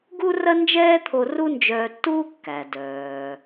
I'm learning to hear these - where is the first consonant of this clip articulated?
velum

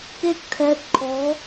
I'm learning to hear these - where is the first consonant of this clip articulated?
velum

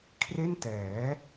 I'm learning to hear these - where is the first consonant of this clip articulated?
velum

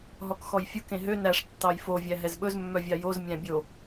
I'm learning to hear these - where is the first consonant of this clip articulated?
throat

